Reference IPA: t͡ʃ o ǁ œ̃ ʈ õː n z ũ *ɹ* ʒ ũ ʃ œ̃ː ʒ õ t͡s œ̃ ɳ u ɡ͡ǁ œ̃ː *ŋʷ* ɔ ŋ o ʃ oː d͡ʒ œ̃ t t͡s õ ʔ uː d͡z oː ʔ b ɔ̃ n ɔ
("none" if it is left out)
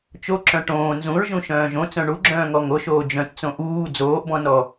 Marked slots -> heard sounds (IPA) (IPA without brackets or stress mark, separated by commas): ɹ, ŋ